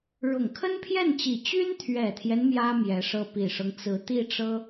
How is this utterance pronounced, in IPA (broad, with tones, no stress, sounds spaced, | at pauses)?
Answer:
ɻ ʊ˨˩ ŋ kʰ ə˥ n pʰ j ɛ˥˩ n t͡ɕ i˨˩ t͡ɕ y˥ n t̪ʰ ɥ ɛ˨˩ t̪ʰ j ɛ˦ n m j ä˥ m j ɛ˧˥ ʂ ɤ˥˩ p i˨˩ ʂ ɤ˦ ŋ t͡s ɹ̩˧˥ t̪ i˥˩ ʈ͡ʂ ɤ˥